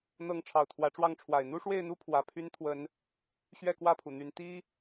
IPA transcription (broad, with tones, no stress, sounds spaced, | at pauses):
n̪ ɤ˨˦ ŋ ʈ͡ʂʰ ɑ˨˩ ʊ̯ t̪ʰ w ä˨˦ ʈ͡ʂ w ɑ˥˨ ŋ ʈ͡ʂʰ w a˨˩ ɪ̯ n̪ u˦ ʂ w e˥˨ ɪ̯ n̪ u˦ pʰ w ä˨˦ pʰ y˦ n t̪ʰ w ə˨˦ n | ɕ ɥ ɛ˥˨ k w ä˥˨ pʰ u˩ n̪ y˨˦ n t̪ i˦